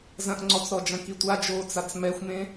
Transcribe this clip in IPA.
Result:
z ɐ̃ ʔ ŋ͡ǀ ɔ t͡s ɾ ɔ d͡ʒ ɐ̃ k i tʷ a d͡ʒ oː t͡s a t͡s m ɛ xʷ m ẽ

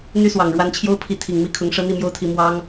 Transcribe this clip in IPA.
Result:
n̪ y˦ s w ɑ˨˩ ŋ ɻ w a˨˦ n t͡ɕʰ j o˦ ʊ̯ pʰ i˨˦ t̪ʰ i˨˩ ŋ m i˦ kʰ ʊ˨˦ ŋ ʂ ɤ˦ n̪ i˥˨ m j o˦ ʊ̯ t̪ʰ i˨˦ m w ɑ˦ ŋ

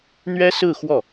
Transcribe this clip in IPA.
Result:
n̪ ɥ ɛ˥ s ɹ̩˥˧ x w ɔ˥˩

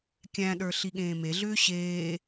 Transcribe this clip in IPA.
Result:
kʲ æ̃ ɗ ə˞ ɬ i ɠ ẽː m e ɮ ʏː ɕ eː

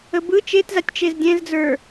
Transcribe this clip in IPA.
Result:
ə b ɯ t͡ʃ e t z a tʲ t͡ʃ e z dʲ ɛ̃ z d͡z ə˞

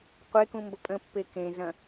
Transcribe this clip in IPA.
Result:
qʷ e k ũ m b ə pʼ ə̃ pː e k ẽ z ɐ̃

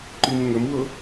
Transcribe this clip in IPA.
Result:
ǃ i m ŋ ə m w ɤ

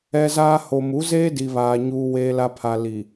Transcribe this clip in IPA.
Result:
ɛ˦ z aː˦ h o˨ m u˨˦ z eː˦ d i˨ β aː˨ ɲ uː˨ w eː˨ l a˨ pʰ a˨ l i˨

